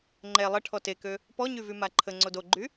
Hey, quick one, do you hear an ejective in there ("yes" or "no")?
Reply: no